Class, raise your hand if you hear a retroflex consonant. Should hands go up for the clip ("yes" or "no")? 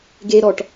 yes